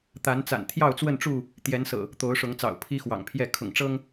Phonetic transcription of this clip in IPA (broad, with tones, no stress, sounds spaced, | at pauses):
t̪ a˨˦ n t͡s a̰˨˩ n t̪ʰ j ɑ˥˨ ʊ̯ t͡s w ə˥˨ n ʈ͡ʂ u˥˨ | t̪ j ɛ˨˦ n s ɤ̰˨˩ | t̪ o˨˦ ʊ̯ ʂ ʊ˨˦ ŋ t͡s ɑ̰˨˩ ʊ̯ pʰ i˦ x w ɑ̰˨˩ ŋ pʰ j ɛ˥˨ kʰ ʊ̰˨˩ ŋ ʈ͡ʂ ɤ˦ ŋ